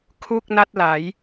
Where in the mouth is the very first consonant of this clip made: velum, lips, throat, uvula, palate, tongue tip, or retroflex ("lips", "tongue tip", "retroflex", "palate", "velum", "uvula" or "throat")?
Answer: velum